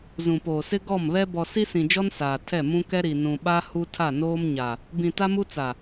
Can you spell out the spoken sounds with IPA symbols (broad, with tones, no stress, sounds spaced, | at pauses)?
z ũ˨ p oː˨ s ɪ˦ ɡ ɔ˦˨ m β ɛ˦ b ɔ˨ s i˦ s ĩ˨ d͡ʒ ɔ˦ n s aː˨ tʰ ɛ˦˨ m ũ˦ k ɛ˦ ɾ i˨ n ũ˨ ɓ a˦ h u˦ tʰ a˦˨ n oː˦ m ɲ a˨ | b ĩ˨ t a˦ m u˦ t͡s a˨